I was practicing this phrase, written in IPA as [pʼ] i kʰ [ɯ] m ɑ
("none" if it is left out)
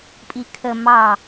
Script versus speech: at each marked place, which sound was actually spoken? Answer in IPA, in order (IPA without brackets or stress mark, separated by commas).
pʼ, ə